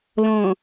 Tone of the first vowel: low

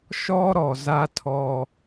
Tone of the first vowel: high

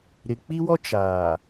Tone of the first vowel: low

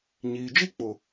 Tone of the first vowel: low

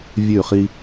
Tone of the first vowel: falling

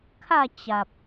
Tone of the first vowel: falling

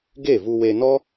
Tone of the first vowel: falling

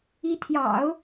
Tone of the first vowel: rising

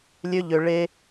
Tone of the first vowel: high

